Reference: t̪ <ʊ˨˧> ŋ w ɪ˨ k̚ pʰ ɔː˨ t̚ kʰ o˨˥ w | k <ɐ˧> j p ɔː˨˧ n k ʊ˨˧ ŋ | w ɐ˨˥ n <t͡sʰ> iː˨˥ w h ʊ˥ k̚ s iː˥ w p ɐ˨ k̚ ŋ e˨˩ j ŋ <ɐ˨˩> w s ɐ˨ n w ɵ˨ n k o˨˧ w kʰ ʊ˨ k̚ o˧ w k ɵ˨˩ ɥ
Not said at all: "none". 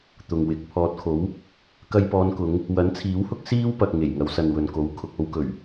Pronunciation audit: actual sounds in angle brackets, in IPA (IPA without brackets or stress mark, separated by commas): ʊ˨, ɐ˧, t͡sʰ, ɐ˨˧